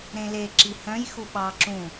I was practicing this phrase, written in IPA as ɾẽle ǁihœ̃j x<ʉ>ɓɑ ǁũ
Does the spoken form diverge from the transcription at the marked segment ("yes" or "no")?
yes